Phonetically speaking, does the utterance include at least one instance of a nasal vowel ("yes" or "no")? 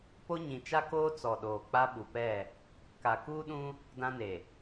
yes